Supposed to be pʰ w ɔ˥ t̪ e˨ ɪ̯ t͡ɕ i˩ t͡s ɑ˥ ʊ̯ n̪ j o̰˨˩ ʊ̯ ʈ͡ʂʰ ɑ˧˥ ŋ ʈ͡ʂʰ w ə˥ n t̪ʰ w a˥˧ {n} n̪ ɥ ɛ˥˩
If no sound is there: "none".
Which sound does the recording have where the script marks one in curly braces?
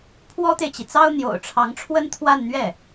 n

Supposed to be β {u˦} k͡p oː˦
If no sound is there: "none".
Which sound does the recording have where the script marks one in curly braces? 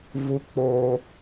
u˦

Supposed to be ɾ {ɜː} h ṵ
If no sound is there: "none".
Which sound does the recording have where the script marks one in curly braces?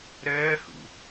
ɜː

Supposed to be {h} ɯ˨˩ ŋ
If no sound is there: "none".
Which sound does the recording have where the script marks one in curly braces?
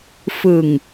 f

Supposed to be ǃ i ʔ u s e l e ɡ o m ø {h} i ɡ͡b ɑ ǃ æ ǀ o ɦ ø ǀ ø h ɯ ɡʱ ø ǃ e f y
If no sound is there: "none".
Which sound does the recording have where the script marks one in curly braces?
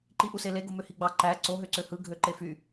h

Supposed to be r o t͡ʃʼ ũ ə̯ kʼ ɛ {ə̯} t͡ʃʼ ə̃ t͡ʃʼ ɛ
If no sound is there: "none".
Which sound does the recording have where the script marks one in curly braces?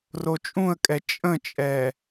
none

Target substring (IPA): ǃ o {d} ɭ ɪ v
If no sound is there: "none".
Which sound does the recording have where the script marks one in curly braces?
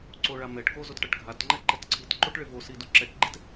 ʈ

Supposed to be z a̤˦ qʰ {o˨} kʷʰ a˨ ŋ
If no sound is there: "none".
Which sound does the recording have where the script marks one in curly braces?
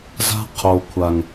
o˨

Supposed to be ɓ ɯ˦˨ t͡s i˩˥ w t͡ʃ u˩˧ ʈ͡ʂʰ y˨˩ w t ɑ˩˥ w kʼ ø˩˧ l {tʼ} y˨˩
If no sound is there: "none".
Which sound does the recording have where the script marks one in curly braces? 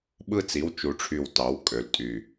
tʼ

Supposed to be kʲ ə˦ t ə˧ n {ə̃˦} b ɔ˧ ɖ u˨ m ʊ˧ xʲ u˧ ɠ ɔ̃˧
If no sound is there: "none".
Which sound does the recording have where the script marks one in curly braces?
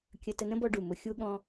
ə̃˦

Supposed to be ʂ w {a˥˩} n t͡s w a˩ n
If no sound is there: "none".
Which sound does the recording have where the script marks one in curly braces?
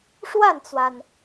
a˥˩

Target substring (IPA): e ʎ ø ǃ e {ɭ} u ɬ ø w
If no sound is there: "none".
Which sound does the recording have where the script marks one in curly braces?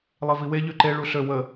ɭ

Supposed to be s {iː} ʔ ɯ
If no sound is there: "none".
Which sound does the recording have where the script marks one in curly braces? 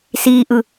iː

